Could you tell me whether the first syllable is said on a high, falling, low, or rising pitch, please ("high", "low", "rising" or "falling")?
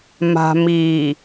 low